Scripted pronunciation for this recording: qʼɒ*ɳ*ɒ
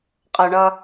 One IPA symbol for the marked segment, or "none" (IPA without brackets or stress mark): ɳ